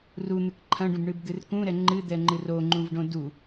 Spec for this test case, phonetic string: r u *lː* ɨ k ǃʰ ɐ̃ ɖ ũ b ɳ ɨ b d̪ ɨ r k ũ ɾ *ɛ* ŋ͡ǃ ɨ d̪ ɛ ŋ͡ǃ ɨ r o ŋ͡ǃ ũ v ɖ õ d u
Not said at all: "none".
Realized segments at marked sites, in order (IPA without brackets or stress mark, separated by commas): n̪, ɛ